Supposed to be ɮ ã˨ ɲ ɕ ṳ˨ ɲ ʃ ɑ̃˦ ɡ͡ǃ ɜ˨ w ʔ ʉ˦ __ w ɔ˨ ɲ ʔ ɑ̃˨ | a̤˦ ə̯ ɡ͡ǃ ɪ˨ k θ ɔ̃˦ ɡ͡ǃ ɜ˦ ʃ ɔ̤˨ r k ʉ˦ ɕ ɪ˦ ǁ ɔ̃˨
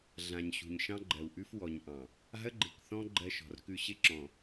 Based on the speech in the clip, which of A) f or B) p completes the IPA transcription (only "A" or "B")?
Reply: A